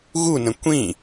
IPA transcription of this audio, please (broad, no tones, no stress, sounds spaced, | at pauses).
ɣ u n ə̃ kʷ ĩ